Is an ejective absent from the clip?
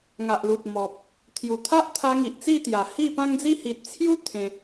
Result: yes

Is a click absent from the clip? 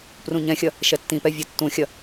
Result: yes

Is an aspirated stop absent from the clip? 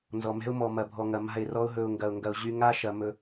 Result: yes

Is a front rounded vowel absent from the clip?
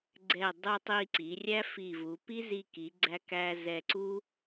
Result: yes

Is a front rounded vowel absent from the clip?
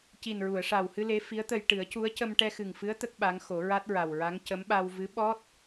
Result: yes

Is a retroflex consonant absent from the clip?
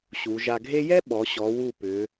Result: yes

